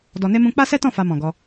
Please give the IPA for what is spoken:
d ɔ˧ n e˦ m ũ˦ k͡p a˦ s ɛ˦ t ɔ̃˦˨ f a˧ m ɔ̃˨ ɡ ɔ˧

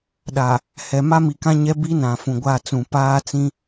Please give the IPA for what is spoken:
ɗ a˨ | h ɛ˨ m a˦ m i˨ k ã˦ ɲ ɛ˦ b i˦ n ã˨ f ũ˨ ɡʷ a˦˨ t͡s ũ˨ p aː˦ t͡s ĩ˦

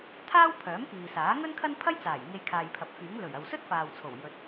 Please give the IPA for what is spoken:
t̪ʰ aː˥ w pʰ œː˨˥ m k iː˨ s aː˨˥ ŋ ɵ˥ n kʰ ɐ˥ n pʰ ɐ˥ j t͡s aː˨˩ j ŋ e˧ j kʰ aː˨ j pʰ ɐ˨ p̚ f yː˨˥ ŋ l ɵ˨˩ ɥ ɐ˨ w s ɵ˥ t̚ f aː˨ w t͡sʰ o˨˩ w j ɵ˨ t̚

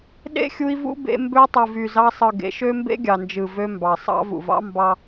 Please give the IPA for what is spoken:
ɗ ḛ˦ xʲ u˧ i̯ v ṵ˦ b ḛ˧ m b ø˧ tˤ ɯ˨ v y˨ z ɑ˧ sˤ ɯ˨ ɡ ḛ˨˦ ʃ ø˦ m b ḛ˦ ɡʲ ɑ˨ n d͡ʒ ɯ˨ v ø˧ m b ɑ˨ sˤ ɑ̰˦ v ṵ˨ v ɑ̰˦ m b ɑ˧

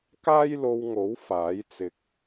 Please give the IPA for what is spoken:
k aː˥ j l o˧ w ŋ o˨˥ w f aː˨˥ j t͡s ɪ˧ k̚

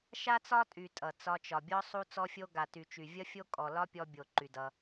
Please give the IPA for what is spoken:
ʃ a˦ t͡s ɒ˦ tʼ y˨ tʼ ʌ˨ t͡s ɒ˧ t͡ʃ ɒ˨ bʲ ɔ˦ sˤ u˦ t͡s ɔ˦ fʲ o˦ ɡ a˨ t y˨ t͡ʃ y˨ vʲ ʌ˦ fʲ o˦ kʼ ɔ˨ l ɒ˦ pʲ ɔ˧ bʲ o˨ ǃ y˨ d ʌ˧

